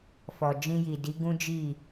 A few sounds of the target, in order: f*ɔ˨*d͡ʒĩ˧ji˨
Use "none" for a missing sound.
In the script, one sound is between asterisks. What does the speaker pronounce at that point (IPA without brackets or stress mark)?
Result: ɔ˨